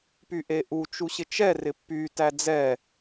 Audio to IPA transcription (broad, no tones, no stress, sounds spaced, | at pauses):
p y ʔ e ʔ u t͡ʃ u ɕ ɪ t͡ʃ ɛ r ɪ pː y t æ d͡z ɛ